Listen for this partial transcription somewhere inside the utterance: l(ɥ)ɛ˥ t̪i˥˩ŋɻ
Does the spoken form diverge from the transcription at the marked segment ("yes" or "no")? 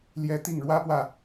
yes